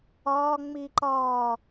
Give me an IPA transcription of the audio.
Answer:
ɒ ŋ͡m i ǃ ɒ

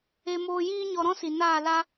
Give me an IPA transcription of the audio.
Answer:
e˧ m oː˧ j iː˦ ɲ ɔ˧ ɾ ɔ̃˦ s i˨ n aː˦˨ l a˦

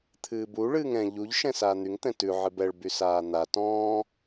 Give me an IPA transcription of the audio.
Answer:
t̪ʰ ɨː b u ɭ ɨː ŋ ɛ̃ ʎ u ʎ ʃ ɛ̃ s aː n̪ y ŋ t̪ ɛ̃ t ʉ ʕ ɨ b ɛ ɭ b y s aː n̪ a t ɔ̃ː

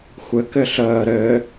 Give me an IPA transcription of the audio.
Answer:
xʷ ɘ k ɘ ɬ əː ɾ ɘː

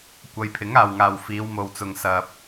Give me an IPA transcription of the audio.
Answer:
kʷ ɐ˨ j pʰ ɪ˨˥ ŋ aː˨ w ŋ aː˨ w f iː˨˧ w m o˨ w t͡s ʊ˨ ŋ s ɐ˨ p̚

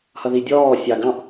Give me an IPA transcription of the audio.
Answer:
h ʌ ð i dʲ ɔː sʲ ɑ ɡ ɑ̃ ʔ

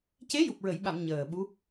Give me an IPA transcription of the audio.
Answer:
c e˧˥ j u˨˩ p̚ ɹ ə˨˩˨ j ɓ a˨˩˨ m ɲ əː˨˩ ɓ u˧˥

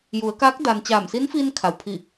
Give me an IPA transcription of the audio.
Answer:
j u˩˧ ə̯ k aː˧˥ k̚ d a˧ n t͡ɕ aː˧˩ m s i˧˥ n f iː˧ n kʰ a˩ w pʰ i˧˩

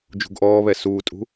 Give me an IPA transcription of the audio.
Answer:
d͡ʒ ṳ ɡ ʔ ɔː β ɛ s uː tʼ ṳ

